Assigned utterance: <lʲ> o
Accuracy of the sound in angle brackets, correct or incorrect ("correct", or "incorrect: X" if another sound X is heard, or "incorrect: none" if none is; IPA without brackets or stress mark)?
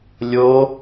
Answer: correct